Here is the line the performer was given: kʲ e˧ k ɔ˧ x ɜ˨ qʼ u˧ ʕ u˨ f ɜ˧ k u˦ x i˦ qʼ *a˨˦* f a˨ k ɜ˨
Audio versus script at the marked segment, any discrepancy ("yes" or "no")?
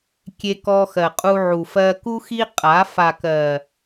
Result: no